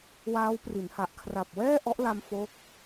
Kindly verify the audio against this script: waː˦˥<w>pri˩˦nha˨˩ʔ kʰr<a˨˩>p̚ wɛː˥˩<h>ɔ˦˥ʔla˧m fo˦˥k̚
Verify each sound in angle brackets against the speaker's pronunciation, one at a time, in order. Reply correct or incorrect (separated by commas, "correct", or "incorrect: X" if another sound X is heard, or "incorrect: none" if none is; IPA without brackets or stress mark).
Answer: correct, correct, incorrect: ʔ